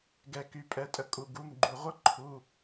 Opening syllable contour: low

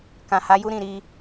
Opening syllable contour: low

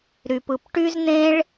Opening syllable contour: low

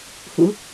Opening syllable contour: rising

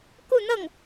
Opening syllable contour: falling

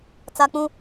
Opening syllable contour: high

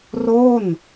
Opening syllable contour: falling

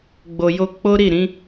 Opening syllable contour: low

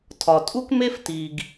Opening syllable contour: low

